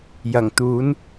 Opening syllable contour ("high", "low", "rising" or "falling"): low